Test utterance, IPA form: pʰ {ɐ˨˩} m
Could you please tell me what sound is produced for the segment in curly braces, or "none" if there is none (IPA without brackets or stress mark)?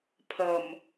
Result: ɐ˨˩